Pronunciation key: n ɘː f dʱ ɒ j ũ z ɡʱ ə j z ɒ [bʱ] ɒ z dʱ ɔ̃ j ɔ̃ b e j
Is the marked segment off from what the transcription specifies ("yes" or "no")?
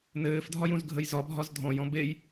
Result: no